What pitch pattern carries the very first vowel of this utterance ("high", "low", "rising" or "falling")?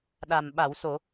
low